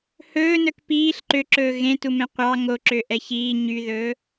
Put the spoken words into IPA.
h ɵː n œ k p iː ɬ ǃ ø ǁ ɵː ɣ ẽ t u m ẽ qʷ ɑ ŋ o ǁ ø ʔ ɛ ç iː ɲ y ð ɵː

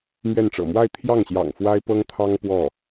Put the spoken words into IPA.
m ɥ ɛ˥˩ n ʈ͡ʂ ɤ̰˨˩ m w a˥˧ ɪ̯ t̪ʰ j ɑ˥˩ ŋ ɕ j ɑ̰˨˩ ŋ f w a˥ ɪ̯ p ɤ˥ ŋ t̪ʰ ɑ˥ ŋ p w ɔ˥˩

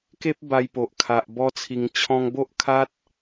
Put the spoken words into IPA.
k e˦ p̚ b a˧ j p o˨ ʔ kʰ a˨ ʔ b ɔ˦ t͡sʰ i˧ ŋ t͡ɕʰ ɔ̃˦ ŋ b o˦ ʔ kʰ a˦ t̚

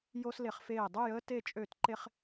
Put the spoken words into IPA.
j o˥ s l e˧ χ f eː˥˩ dˤ ø˥˧ j əː˥ t e˥˧ t͡ʃʼ ø˥˩ t ǃ e˥ χ

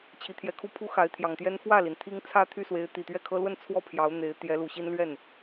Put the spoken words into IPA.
t͡ɕʰ i˧˥ t̪ʰ j ɛ˧˥ kʰ u˥ pʰ u˥ x a˧˥ ɪ̯ t̪ʰ j ɑ˨˩ ŋ t̪ j ɛ˥ n f w ä˥˩ l i˩ n t̪ʰ i˥ ŋ t͡sʰ ä˥ t̪ʰ y˥˩ s w e˧˥ ɪ̯ t̪ i˨˩ t̪ ɥ ɛ˥˩ kʰ ɤ˥ l w ə˥˧ n t͡sʰ w ɔ˥˩ pʰ j ɑ˧˥ ʊ̯ n̪ e˧˥ ɪ̯ t̪ j ɛ˧˥ l u˨˩ ɕ i˥ n l ɥ ɛ˥˩ n

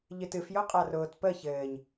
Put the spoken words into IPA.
ʎ ɨ t ɨ f j ʊ qʼ a r ʊː t p əː ç ɘː ɲ

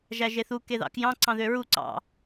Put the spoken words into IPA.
ʒ æ ʒ e θ u k e ð ɑ̰ k j ɑ̃ ǀ ɑ̃ ð ø ɹ u ǀ ɑ̰

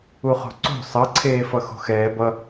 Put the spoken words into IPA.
u χ o̤ ǀ o̤ sˤ ʌ ǀʰ eː f ʌ x o̤ x ɛː b ʌ

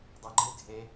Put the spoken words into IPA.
dˤ e ɡ͡ǃ ɨ dʱ e

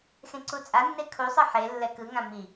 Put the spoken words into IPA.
x ẽ ǀ u t͡sʼ a nː e kʰ u sˤ ɯ ħ e lː ɛ k ɯ ŋ ã m i

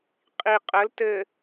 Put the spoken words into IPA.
qʼ i qʼ ə l t ɘ

